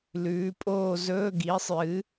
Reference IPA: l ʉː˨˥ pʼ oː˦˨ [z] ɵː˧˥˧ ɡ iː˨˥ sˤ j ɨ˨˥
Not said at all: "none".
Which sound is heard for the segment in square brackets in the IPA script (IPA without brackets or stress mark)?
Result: z